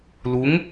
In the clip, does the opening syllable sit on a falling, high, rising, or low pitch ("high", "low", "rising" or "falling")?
rising